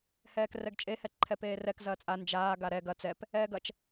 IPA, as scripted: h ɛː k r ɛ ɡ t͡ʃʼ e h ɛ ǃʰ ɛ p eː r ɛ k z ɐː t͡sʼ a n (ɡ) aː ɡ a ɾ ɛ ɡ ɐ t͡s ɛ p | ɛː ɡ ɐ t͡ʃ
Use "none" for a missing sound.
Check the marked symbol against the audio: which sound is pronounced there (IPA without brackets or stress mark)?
d͡ʒ